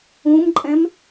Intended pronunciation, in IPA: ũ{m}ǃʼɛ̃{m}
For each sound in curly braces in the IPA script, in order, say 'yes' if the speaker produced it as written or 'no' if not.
yes, yes

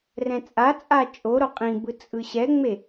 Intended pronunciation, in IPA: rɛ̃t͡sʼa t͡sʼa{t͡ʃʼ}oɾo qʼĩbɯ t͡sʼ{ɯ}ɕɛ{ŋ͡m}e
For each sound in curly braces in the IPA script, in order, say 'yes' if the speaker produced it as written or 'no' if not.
yes, yes, yes

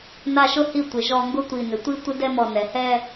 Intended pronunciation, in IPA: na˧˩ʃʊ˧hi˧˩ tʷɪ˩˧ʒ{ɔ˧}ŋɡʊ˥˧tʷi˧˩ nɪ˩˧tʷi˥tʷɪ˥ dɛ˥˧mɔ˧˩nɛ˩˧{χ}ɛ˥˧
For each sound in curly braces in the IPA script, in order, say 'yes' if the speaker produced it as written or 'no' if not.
yes, no

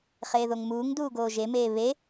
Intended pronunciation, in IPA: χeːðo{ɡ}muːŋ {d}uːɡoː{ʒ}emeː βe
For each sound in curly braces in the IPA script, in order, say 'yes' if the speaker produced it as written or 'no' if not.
no, yes, yes

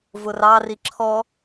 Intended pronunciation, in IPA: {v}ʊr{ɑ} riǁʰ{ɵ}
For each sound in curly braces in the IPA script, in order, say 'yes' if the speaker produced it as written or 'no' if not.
yes, yes, no

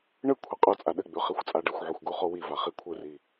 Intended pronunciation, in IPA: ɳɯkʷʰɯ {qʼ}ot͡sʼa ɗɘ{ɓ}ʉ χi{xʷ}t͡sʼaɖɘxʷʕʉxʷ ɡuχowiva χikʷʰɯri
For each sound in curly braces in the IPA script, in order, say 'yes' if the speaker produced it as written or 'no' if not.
yes, no, yes

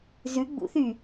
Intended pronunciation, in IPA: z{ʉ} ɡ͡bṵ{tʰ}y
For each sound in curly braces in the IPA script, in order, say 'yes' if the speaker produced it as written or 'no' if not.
yes, no

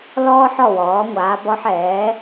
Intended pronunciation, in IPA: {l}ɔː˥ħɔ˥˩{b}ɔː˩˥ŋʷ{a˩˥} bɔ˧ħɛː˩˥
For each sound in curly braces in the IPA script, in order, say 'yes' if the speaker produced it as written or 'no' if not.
yes, no, no

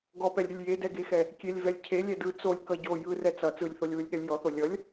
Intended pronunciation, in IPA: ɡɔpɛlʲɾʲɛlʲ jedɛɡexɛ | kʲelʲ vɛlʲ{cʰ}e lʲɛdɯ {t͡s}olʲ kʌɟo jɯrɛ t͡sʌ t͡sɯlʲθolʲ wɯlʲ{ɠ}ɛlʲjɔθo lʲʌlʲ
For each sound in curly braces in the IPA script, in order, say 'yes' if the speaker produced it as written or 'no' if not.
yes, yes, yes

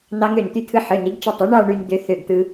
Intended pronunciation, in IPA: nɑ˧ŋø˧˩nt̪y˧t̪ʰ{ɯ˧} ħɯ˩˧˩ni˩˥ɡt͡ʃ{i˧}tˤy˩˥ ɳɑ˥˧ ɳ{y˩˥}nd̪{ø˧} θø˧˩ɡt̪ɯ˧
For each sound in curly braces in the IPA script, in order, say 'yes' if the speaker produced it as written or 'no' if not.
yes, yes, no, yes

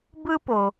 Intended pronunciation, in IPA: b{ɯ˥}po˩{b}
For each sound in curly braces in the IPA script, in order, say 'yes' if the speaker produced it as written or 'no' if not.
yes, no

